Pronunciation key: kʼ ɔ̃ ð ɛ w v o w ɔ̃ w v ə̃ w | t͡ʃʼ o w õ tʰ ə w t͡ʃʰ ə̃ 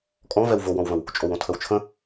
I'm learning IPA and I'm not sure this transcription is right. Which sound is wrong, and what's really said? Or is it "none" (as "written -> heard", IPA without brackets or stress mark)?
ð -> v